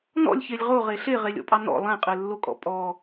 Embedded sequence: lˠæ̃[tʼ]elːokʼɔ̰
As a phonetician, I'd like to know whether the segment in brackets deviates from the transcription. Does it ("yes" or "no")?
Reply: yes